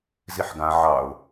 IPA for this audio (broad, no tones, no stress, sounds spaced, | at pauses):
z i ħ ɡ ã ʕ ɑ ʊ̯